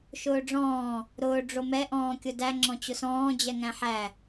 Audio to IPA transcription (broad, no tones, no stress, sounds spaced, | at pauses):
ʃ ʊː ɖ͡ʐ ɔ̃ː | ɾ ʊː ɖ͡ʐ o m ɛ ʔ ɔ̃ː kʲ ʊ d æ ŋ͡ǁ ɔ̃ t͡ɕ ʊ s ɔ̃ː d͡ʑ ɛ ŋ æ̃ ħ æ